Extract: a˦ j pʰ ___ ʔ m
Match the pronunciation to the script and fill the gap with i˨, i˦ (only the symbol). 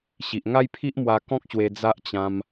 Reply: i˦